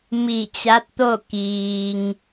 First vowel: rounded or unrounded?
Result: unrounded